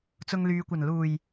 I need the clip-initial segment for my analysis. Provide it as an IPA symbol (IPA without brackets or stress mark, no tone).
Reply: t͡s